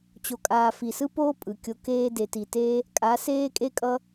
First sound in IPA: t͡ɕ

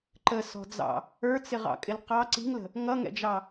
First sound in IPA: ǃ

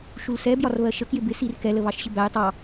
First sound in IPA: ʃ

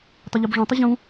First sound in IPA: tˤ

